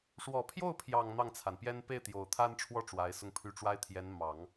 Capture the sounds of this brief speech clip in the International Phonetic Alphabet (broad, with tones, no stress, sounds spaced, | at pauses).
ʂ w ɔ˨˩ pʰ j o˥˩ ʊ̯ pʰ j ɑ˨˩ ŋ n̪ ɑ˥˩ ŋ t͡sʰ a˩ n p j ɛ˥ n p e˥˩ ɪ̯ t̪ j o˨˩ ʊ̯ t̪ʰ a˥ n ʈ͡ʂʰ w ɔ˥˩ ʈ͡ʂ w a˧˥ ɪ̯ s ʊ˥˧ ŋ pʰ y˥˩ ʈ͡ʂ w a˥ ɪ̯ t̪ʰ j ɛ˧˥ n m ɑ˨˩˦ ŋ